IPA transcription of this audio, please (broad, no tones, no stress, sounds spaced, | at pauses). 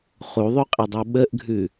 χ u ðˤ ʉ qʼ i dˤ u ɓ ə ʔ ɡʱ ʉ